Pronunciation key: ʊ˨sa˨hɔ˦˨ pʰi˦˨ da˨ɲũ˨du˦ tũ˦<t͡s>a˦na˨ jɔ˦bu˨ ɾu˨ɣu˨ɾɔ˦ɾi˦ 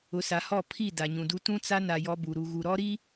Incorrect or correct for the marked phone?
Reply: correct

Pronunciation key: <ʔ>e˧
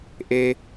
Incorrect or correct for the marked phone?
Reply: correct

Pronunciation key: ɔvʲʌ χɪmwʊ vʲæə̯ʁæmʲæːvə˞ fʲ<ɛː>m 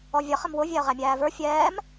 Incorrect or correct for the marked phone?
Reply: correct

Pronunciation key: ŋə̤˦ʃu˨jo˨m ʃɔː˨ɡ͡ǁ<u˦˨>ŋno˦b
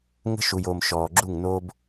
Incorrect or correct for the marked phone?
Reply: correct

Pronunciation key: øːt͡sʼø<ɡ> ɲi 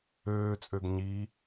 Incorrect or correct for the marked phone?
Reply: correct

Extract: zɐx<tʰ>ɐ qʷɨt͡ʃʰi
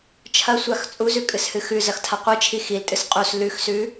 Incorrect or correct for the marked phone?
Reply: correct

